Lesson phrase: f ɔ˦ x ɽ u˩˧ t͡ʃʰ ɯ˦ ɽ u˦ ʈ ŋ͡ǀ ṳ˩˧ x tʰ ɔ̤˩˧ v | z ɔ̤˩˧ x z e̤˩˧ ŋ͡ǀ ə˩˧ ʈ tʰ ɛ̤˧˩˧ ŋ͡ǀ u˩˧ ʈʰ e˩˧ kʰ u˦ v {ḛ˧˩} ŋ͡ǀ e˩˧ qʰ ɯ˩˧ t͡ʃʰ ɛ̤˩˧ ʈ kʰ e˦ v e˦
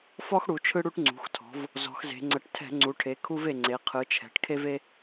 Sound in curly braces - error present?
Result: yes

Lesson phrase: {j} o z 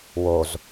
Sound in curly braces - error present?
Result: yes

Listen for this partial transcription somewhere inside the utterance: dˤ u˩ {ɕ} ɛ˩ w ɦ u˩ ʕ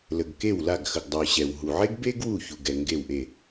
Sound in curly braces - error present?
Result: no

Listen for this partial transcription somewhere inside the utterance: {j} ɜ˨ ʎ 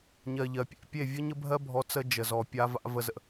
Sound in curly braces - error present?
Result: yes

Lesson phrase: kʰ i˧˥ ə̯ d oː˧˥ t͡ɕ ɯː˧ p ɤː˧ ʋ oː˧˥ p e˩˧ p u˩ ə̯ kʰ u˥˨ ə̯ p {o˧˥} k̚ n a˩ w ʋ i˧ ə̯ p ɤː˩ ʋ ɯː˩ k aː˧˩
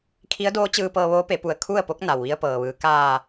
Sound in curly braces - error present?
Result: no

